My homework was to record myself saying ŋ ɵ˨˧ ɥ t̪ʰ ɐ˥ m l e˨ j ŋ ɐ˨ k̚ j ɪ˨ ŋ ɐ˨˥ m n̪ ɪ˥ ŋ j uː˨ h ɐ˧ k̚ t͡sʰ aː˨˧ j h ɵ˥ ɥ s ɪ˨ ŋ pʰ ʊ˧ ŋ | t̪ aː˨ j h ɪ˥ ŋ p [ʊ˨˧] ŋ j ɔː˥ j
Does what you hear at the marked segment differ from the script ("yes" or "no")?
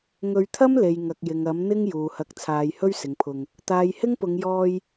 no